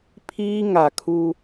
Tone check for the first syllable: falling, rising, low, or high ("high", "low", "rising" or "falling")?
high